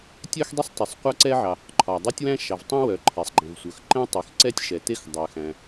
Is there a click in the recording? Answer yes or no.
yes